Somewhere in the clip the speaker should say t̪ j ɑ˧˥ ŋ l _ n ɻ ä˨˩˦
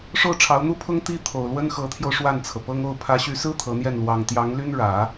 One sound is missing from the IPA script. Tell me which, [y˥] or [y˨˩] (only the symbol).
y˥